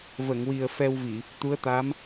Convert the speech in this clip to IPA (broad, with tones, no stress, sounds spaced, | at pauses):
v ə˨˩˨ ŋ w i˨˩ ə̯ f ɛ˧ w v i˨˩˨ | t̪ u˧˥ ə̯ t̪ a˧˥ m